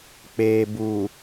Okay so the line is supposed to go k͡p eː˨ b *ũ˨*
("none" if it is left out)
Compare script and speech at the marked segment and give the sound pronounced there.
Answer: u˨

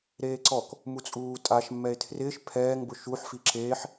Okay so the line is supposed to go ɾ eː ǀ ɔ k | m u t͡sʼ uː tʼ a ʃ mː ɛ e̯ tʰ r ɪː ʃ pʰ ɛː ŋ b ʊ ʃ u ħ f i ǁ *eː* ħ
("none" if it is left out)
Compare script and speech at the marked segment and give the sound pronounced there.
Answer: eː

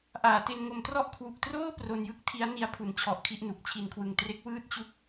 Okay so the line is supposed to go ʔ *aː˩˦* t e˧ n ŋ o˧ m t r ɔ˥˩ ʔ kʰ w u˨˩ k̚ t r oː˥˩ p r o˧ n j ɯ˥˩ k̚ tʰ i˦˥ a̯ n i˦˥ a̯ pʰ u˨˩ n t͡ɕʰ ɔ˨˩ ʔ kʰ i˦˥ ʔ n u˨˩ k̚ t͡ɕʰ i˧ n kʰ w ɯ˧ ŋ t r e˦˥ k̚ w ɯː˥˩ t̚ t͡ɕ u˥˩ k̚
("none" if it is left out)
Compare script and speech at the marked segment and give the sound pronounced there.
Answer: aː˩˦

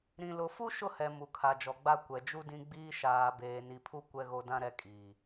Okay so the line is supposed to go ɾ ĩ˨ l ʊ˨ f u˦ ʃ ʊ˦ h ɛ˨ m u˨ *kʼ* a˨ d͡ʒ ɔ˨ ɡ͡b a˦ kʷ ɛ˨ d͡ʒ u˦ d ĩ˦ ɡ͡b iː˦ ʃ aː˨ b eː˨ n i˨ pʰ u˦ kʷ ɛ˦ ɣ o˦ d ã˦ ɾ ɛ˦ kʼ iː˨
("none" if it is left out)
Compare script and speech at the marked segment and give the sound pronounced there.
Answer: kʰ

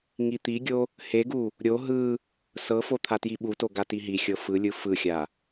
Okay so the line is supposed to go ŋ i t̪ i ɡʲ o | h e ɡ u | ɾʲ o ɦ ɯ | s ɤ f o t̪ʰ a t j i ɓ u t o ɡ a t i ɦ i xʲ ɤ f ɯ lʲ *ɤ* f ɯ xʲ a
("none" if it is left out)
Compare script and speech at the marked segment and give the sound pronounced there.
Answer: ɯ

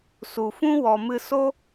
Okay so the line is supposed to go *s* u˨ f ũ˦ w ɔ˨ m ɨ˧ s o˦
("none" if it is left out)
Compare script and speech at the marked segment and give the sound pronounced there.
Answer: s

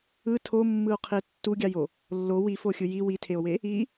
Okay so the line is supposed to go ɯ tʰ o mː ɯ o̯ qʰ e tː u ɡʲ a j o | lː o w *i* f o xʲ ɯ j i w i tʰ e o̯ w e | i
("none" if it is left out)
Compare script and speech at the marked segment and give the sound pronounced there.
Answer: i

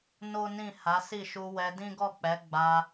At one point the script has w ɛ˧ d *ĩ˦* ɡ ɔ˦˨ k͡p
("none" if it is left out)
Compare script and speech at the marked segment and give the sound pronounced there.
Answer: ĩ˦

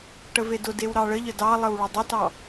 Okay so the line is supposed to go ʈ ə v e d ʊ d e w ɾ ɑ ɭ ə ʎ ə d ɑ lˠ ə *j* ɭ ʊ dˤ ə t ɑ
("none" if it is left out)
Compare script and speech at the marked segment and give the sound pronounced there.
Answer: w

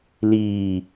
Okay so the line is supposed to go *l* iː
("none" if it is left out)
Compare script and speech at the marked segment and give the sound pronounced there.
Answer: l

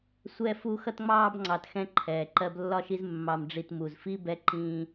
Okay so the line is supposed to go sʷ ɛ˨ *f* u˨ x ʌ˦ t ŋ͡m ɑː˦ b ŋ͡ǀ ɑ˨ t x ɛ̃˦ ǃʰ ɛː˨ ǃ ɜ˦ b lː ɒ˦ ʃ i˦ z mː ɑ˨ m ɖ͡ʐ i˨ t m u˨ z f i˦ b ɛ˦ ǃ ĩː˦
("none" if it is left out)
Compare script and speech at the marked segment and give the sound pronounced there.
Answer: f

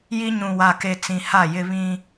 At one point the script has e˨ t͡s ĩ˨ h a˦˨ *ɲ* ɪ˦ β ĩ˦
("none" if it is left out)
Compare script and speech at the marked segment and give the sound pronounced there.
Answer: j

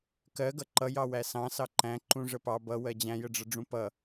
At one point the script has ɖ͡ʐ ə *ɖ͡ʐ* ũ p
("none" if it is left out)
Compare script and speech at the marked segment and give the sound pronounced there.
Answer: ɖ͡ʐ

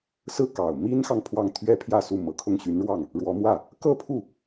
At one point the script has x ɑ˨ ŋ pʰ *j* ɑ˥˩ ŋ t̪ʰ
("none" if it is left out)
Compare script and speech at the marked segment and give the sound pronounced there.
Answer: w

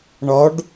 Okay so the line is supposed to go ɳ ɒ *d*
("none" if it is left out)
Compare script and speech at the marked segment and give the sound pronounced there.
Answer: ɖ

